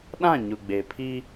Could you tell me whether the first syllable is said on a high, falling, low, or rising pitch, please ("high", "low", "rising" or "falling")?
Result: falling